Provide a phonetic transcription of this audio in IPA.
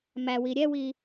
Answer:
m æ w i ɾʲ ɛ w i

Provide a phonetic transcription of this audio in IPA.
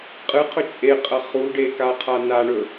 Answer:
qʼ ɨ qʰ ɵ t͡ʃʼ e qʼ ɐ χ u ɖ e k a qʰ a n a ɳ ɵ

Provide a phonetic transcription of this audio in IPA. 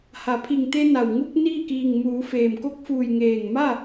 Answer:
h a˩˧ pʰ i˧˩ ŋ t̪ e˧ n a˩ w ŋ u˧ k̚ n iː˥˨ k iː˧˩ ŋ m uː˩˧ f eː˩ m k o˧˥ k̚ f uː˧˩ j ŋ eː˧˩ ŋ m a˥˨

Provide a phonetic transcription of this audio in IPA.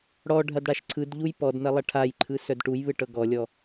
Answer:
ɽ ɔ ɖʱ ɐ d ɽ a ʃ ǀʰ ɯ d ʎ u j p ɔ d n ɐ lˠ ɐ ʈʰ a j ǃʰ ɯ s œ d ʈ u j β ɯ ʈ ɤ ɡ ɔ lʲ ɔ

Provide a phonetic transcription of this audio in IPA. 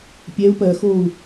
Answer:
pʲ ɛ u̯ p ɜ x oː u̯

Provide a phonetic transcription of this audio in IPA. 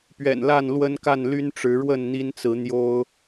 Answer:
p ɥ ɛ̰˨˩ n l a˥˨ n l w ə˦ n k a˥˨ n l y˦ n ʈ͡ʂ ɻ̩˨˦ ɻ w ə˥˨ n n̪ i˦ n t͡s ɹ̩˨˦ n̪ j o˦ ʊ̯

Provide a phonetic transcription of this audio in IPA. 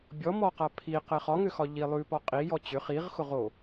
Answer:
bʲ ɔ m ɔ q a pʰ i q ɛ χ ɒ ŋ ʏ x ɒ ʎ i lˠ ʉ p ɒ qʼ i j ɔ t͡ɕ ʏ χ i ʁ x ʊ ʁ o

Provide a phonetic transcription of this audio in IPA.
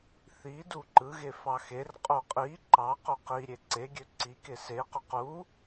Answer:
θ i d u ǃ ɯ ɣ e f ɑ x e r qʼ o qʼ i ǃ ɑ q o q i ɾʲ e ǀ e ɡʲ ø ǀ i k e s e q ø q u

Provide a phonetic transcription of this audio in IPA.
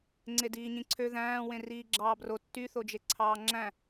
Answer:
ŋ͡ǀ e d iː ɲ ĩ ǀʰ ø ð æ̃ː w ẽ r iː ɡ͡ǁ ɑː b r o tː y θ o d͡ʒ e ǀʰ ɑː ŋ͡ǁ æ̃

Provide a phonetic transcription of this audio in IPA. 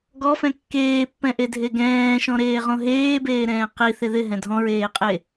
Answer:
ɡ ɔ f ɛ̃ kː eː pː ɛ̃ ʔ e dʱ e ɡ ɛ̃ː ʃ ɔ̃ ɾ eː ʁ õ ɦ eː b eː ɾ ɛ̃ː q i θ ɪ ð ɪ ɦ ɛ̃ dʱ ɔ̃ ɹ eː qʼ e

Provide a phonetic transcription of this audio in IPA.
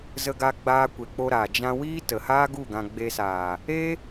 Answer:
z ə˧ ɡ a˧ ɡ͡b aː˧ kʷ e˨ k͡p o˧ ɾ aː˨ d͡ʒ ã˧ w iː˦ t ə˨ h aː˦ ɡ u˦˨ ɡ ã˧ ɡ͡b e˧ s aː˨ | e˦

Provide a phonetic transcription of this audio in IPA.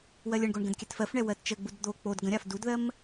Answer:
w ɜ lʲ ə ɳ ɡ o ɳ ɡ ə̃ d kʲ ɛ t f ɜ f ɳ ɛ w ɜ t t͡ʃ ə ɡ͡b u d d̪ o k͡p o d ɡ ə̃ ɾʲ a f d u d ð ɜ m

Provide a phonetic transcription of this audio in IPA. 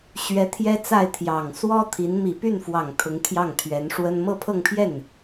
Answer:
ɕ ɥ ɛ˧˥ t̪ʰ j ɛ˥ t͡s a˥˩ ɪ̯ t̪ʰ j ɑ˨˩ ŋ s w ɔ˥ t̪ʰ i˧˥ n m i˨˩ p y˥˩ n f w ɑ˨˩ ŋ t̪ʰ ʊ˧˥ ŋ t̪ʰ j ɑ˥˩ ŋ t̪ʰ ɥ ɛ˧˥ n ʂ w ə˥ n m ɤ˥˧ pʰ ɤ˥˧ ŋ pʰ j ɛ˥˩ n

